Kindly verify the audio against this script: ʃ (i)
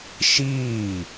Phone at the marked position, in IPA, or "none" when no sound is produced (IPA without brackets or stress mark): iː